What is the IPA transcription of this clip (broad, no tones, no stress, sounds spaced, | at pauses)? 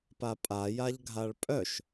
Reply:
p a pʼ a j a ʎ ɡʱ a ɭ pʼ œ ʃ